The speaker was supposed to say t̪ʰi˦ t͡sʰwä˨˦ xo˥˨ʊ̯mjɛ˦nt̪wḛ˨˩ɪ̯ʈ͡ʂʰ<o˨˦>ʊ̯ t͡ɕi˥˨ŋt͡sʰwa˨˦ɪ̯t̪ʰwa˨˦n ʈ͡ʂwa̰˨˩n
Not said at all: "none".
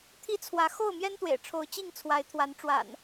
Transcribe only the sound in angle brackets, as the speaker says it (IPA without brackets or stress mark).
o˨˦